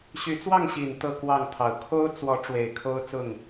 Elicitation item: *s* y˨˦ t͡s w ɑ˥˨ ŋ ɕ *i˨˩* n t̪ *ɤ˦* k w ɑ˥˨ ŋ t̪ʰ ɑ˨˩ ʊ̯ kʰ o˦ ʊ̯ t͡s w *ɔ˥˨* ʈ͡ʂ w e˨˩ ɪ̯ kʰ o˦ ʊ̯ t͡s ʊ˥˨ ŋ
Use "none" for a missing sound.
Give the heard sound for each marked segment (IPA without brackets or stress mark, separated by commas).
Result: ɕ, i˨˩, ɤ˥˨, ɔ˨˦